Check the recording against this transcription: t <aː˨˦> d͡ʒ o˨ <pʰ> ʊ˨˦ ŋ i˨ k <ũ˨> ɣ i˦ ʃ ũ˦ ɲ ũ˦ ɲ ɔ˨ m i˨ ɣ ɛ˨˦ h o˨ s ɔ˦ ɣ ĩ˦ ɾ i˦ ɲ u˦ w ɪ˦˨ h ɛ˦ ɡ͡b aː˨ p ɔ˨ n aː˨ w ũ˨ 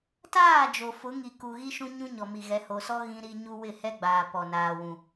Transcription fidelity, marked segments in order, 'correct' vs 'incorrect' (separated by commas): incorrect, incorrect, incorrect